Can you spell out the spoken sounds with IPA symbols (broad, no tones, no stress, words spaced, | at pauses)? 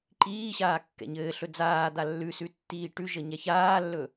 ǃiːɕaː kːɛ̰ɲɘːɬɵ d͡zaː d̪alːʉsʉ tːiːʈʉʒə ɲɛçaːlːɵ